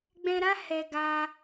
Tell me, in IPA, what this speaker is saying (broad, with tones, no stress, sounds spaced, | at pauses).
ɡ͡b ɛ̃˧ ɾ a˦ h ɛ˧ ɡ a˧